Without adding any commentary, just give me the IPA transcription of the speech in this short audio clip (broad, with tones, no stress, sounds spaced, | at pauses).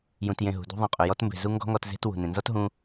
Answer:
j ũ˨ t j ẽ˨ ɦ ṳ˨ d ṳ˧ ðˤ ẽ˨ qʼ ɵ˨ j ɔ˧ t m b e̤˨ z u˦ ŋ ɡ ɔ̤˦ ŋ ɔ˧ t z e̤˦ t w ṳ˨ n ẽ˨ n z ɔ˦ t ɦ ũ˧